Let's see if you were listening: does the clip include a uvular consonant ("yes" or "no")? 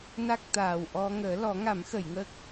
no